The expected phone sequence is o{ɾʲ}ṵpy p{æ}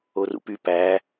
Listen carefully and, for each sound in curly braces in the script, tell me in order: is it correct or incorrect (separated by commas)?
incorrect, correct